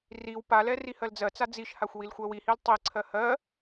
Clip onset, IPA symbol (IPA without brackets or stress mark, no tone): r